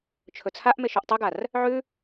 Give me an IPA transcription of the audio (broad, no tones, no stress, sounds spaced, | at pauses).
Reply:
t͡ʃʰ ɵ t͡sʰ a ʔ m e ʃ ʉ ʔ tˤ ɨ ɡ a r | ʕ ʉ